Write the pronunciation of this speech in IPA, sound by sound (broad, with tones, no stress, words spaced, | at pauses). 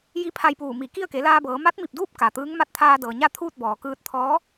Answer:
ji˧˥pʰa˧jpuː˧˩ mi˧˩ ki˥˨ə̯ke˩˧laː˧bɤː˩˧ ma˧˥t̚mi˧˩p̚duː˥˨p̚ ka˩t̪ɯː˧˥ŋ ma˧t̚t̪ʰaː˧dɤː˩ɲa˥˨ t̪ʰuː˥˨t̚ bɔː˩kɯː˧t̚t̪ʰɔː˧˥